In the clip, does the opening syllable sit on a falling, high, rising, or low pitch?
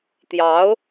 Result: rising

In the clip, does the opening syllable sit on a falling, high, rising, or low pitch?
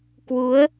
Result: rising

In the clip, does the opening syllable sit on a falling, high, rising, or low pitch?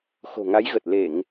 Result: low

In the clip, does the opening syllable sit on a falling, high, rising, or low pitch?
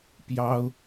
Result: high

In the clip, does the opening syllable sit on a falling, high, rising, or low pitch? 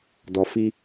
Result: low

